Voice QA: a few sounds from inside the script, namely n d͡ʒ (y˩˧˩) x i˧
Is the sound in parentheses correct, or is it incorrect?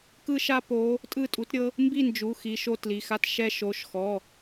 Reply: incorrect: u˩˧˩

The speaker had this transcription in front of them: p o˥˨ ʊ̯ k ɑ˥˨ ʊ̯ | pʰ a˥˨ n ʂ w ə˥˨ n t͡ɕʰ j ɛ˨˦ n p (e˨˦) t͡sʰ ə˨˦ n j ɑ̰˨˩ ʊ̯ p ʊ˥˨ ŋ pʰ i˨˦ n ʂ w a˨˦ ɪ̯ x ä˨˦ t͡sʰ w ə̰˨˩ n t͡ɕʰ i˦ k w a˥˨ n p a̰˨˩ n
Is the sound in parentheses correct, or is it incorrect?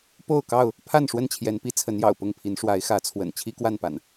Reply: incorrect: i˨˦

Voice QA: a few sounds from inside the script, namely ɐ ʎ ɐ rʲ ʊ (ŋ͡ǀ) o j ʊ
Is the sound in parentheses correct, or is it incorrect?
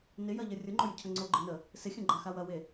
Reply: incorrect: ŋ͡ǃ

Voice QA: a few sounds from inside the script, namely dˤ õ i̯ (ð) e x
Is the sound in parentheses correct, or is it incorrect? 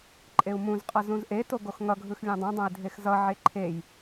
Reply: incorrect: dʱ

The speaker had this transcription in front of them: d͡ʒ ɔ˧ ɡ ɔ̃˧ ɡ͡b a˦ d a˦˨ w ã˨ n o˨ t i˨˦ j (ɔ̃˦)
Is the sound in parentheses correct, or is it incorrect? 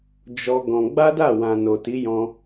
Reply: incorrect: ɔ̃˧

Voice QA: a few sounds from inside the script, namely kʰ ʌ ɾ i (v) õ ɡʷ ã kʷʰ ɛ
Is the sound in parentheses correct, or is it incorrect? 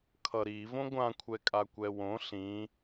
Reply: correct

